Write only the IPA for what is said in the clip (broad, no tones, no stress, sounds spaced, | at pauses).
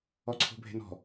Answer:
ɔ ǀʰ o̤ bʱ e̤ n ɔ̤